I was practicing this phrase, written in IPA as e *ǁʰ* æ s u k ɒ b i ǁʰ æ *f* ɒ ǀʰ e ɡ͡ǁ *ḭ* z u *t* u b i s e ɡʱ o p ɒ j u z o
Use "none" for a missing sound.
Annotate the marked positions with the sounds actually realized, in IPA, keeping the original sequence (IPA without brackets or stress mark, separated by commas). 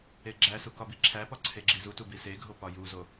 ɡ͡ǁ, p, i, t